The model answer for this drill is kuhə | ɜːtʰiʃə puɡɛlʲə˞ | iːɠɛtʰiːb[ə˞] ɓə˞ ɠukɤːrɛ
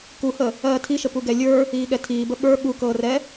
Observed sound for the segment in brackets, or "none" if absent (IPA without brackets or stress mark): ə